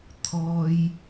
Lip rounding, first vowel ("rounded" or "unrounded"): rounded